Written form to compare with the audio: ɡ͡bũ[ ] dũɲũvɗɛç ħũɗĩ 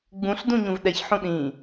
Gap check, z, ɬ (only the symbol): ɬ